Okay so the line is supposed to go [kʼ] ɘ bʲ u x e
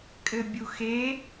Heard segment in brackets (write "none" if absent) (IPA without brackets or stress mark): kʼ